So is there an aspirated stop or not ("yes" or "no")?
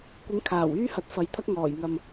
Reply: yes